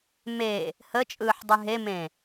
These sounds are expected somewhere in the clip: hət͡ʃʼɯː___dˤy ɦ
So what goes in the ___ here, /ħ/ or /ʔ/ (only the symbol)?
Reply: ħ